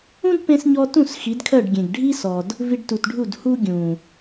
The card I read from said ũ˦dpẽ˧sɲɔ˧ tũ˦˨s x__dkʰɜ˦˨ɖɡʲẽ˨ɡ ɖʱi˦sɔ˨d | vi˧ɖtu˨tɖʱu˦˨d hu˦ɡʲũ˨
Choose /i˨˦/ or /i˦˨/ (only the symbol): i˨˦